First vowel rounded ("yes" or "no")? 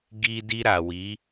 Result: no